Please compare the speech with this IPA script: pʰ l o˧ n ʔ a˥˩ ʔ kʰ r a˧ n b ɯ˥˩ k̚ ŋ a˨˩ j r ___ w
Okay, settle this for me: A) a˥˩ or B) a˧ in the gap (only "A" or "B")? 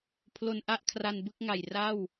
A